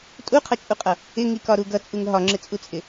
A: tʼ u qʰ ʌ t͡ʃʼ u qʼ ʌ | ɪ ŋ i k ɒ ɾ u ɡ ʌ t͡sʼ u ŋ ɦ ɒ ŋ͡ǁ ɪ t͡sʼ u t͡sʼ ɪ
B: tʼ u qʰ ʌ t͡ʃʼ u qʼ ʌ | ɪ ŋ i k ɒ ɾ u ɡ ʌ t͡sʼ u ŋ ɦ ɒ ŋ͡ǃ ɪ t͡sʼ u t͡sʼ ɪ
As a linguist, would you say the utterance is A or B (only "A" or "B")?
A